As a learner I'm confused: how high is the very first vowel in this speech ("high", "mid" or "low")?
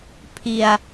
high